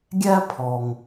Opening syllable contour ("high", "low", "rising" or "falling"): high